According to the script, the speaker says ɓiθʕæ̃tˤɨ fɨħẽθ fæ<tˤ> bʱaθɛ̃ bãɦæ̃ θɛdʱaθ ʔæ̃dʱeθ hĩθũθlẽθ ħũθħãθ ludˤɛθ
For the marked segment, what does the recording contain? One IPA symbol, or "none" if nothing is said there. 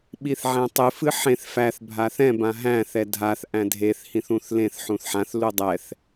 θ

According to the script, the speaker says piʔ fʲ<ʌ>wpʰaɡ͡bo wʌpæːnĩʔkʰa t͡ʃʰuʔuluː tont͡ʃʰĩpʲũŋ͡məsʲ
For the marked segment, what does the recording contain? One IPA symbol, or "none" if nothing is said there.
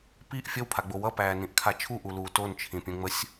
ʌ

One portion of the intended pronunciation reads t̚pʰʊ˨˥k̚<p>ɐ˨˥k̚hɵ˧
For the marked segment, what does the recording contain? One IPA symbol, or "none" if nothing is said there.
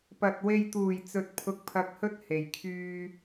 pʰ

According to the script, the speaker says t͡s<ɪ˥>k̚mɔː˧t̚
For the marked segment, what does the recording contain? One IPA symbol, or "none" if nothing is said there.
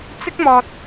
ɪ˥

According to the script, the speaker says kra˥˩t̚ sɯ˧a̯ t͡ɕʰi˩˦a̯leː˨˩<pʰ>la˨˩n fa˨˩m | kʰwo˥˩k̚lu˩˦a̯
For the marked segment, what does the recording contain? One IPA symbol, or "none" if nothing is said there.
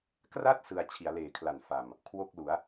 kʰ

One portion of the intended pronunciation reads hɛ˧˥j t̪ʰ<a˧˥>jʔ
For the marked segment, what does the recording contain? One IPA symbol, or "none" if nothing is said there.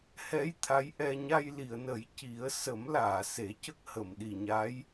a˧˥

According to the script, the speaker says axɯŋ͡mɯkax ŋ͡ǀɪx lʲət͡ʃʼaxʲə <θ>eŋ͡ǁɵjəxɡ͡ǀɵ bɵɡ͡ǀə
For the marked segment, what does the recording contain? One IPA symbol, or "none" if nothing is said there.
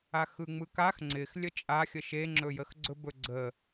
ʃ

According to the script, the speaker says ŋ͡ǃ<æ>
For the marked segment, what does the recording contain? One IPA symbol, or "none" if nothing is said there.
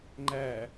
æ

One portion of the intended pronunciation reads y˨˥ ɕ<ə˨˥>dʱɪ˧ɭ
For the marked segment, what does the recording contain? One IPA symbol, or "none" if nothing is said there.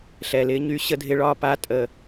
ə˧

